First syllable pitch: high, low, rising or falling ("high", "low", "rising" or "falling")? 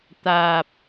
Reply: low